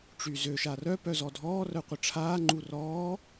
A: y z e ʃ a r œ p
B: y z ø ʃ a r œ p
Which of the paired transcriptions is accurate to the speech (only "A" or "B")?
B